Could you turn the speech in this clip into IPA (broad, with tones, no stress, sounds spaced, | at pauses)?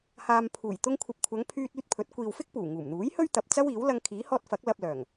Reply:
h aː˨ m pʰ uː˨˩ j t̪ ʊ˧ ŋ kʷʰ ɐ˨ p̚ kʷʰ ɐ˨˧ ŋ pʰ yː˧ t̚ yː˧ t̚ pʰ ɵ˨˥ t̚ kʷ iː˨ w f ɪ˥ k̚ p uː˨˩ ŋ uː˨˩ m n̪ uː˨˥ j h ɵ˥ ɥ t̪ ɐ˨ p̚ t͡s ɐ˥ w iː˨˥ w l ɐ˧ ŋ kʰ iː˨˥ h ɔː˧ t̚ f ɐ˨˥ k̚ l ɐ˧ p̚ l œː˨˩ ŋ